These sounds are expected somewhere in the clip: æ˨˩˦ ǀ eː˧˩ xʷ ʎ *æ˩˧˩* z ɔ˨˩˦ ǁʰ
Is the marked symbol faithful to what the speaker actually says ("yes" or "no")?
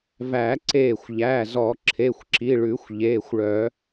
yes